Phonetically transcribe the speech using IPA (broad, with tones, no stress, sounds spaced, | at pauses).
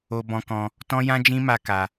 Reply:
o˧ b ɔ̃˧ k ɔ̃˧ | t ɔ̃˦ j ã˦ d͡ʒ ĩ˦ m a˦ k a˧